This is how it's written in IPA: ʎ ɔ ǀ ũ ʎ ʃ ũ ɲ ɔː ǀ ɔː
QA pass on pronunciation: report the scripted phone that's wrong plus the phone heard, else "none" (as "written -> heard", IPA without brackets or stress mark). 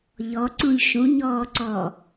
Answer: none